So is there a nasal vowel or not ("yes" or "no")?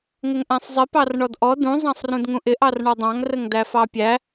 yes